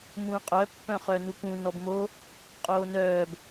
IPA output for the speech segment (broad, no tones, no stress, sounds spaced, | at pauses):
m ũː qʼ œ pː œ̃ χ œ n u k ũ n ɔ b m o | qʼ oː n œː b